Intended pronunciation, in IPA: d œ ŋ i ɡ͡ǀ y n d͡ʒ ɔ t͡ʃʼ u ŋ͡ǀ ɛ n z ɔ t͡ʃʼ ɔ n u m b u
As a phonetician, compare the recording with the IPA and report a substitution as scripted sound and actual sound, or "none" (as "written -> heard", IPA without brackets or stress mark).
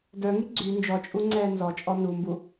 ɛ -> ɛː